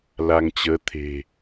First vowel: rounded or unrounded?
unrounded